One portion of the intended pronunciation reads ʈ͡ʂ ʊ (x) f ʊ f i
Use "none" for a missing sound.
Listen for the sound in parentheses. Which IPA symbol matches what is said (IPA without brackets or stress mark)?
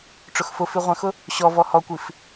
x